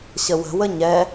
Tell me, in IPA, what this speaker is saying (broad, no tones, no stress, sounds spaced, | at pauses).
ɕ ə w ə̤ w ə ɲ ɛ